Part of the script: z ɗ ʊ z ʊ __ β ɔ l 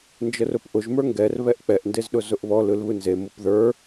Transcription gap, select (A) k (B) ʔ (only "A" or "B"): B